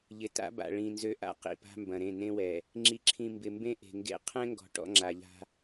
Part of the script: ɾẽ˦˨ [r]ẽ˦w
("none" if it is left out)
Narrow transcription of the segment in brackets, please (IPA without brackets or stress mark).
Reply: n